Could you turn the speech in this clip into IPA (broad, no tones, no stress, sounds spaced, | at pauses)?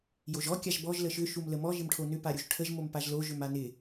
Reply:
j o ʒ ɔ kʲ a ʒ b ɔ ʒ l ə ʃ ʏ ʃ u m l ə m ɔ ʒ ɪ m ʈʰ o n ʏ p a ɾʲ u ʒ ʈʰ ə ʒ m o m p a ʒ l o ʒ ʏ m a n ɪ